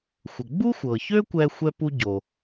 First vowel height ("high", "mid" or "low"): mid